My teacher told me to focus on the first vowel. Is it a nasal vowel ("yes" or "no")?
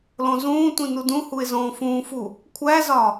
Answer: yes